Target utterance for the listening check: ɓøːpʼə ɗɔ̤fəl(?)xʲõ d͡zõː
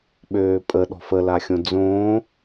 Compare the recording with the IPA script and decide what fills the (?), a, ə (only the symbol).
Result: a